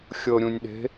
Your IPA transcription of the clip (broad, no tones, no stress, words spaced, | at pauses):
xʲɤɾʲũnʲɗe̤